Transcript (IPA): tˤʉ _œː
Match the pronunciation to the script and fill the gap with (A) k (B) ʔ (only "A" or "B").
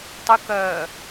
A